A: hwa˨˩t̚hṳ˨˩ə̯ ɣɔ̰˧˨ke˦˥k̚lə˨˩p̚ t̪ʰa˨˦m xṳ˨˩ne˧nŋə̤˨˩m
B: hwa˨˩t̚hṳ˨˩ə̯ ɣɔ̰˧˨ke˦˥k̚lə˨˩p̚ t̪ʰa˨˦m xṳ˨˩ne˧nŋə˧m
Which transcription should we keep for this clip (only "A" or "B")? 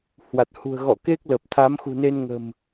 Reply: A